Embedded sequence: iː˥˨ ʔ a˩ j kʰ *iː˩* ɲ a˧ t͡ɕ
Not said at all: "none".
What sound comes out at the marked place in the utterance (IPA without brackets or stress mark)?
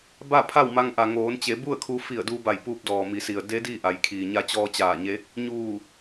iː˩